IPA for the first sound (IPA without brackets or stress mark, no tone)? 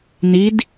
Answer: n